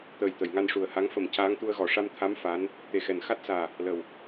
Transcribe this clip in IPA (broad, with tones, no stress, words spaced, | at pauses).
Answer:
t̪əː˨˩jt̪ə˨˩˨jŋa˧n ʂu˨˩ə̯ha˧˥ŋ fə˨˩m caː˧˥ŋt̪u˧ə̯ɣɔ˨˩˨ ʂa˧mt̪ʰa˧˥m fa˧˥n | t̪e˨˩xɛ˨˩n xa˦˥t̚saː˨˩ | lə˨˩w